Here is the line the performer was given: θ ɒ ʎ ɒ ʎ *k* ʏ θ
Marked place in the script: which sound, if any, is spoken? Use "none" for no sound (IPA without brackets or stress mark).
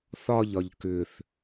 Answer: k